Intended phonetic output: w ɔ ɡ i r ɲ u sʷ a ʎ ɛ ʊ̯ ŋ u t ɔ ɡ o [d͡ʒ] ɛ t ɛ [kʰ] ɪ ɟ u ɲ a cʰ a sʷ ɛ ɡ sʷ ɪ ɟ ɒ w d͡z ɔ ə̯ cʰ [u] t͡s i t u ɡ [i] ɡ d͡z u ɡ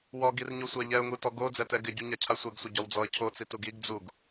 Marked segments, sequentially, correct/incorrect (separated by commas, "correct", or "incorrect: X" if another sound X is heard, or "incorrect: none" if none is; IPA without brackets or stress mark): incorrect: d͡z, incorrect: ɡ, incorrect: o, correct